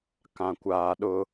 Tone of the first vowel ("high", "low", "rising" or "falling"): low